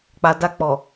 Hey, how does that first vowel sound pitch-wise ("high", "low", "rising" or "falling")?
low